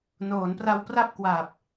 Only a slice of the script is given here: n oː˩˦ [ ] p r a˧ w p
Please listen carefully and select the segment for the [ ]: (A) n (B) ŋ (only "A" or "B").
A